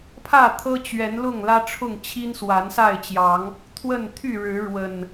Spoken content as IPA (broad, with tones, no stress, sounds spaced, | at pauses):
pʰ ä˥˨ t̪ʰ ɤ˦ t͡ɕ ɥ ɛ˨˦ n l ʊ˥˨ ŋ l ä˦ ʈ͡ʂʰ ʊ˥˨ ŋ t͡ɕʰ i˦ n s w a˨˦ n s a˥˨ ɪ̯ t͡ɕ j ɑ˨˦ ŋ | t̪ʰ w ə˥˨ n t̪ʰ y˥˨ ɻ ɻ̩˨˦ ɻ w ə˨˩ n